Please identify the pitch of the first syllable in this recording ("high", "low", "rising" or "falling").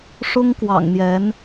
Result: high